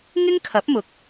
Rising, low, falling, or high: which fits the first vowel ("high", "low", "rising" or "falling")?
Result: high